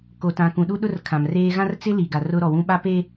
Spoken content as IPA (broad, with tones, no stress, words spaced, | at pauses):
ko˨tã˨kũ˨ ɗu˦ɗʊ˦r kʰã˨mreː˦ ɣã˦rt͡sɪ˦ li˨ɡa˨rʊ˦ ɾɔ˨wũ˦ ɓa˦pe˦